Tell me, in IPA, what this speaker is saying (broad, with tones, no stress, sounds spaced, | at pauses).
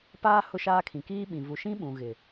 p aː˦ h ʊ˦ ʃ aː˦ kʰ ĩ˨ k iː˦ ɓ ĩ˨ v u˨ ʃ ĩ˦ ɓ ũ˨ ɣ ɪ˨